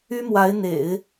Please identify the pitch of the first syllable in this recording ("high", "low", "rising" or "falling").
high